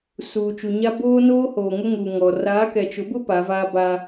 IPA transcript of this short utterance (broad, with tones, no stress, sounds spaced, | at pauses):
s uː˨ t͡ʃ u˨ ɲ a˦ b oː˦ n oː˦ h oː˨ ŋ ʊ˦ ŋ u˨ ŋ ɔ˨ r aː˨˦ k ɛ˨ t͡ʃ ʊ˨˦ b ʊ˦ p a˨˦ v aː˦ b a˦